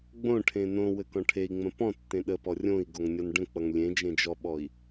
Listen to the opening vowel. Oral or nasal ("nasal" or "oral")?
nasal